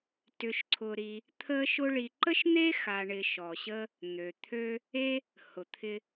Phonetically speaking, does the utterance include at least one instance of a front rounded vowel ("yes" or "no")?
yes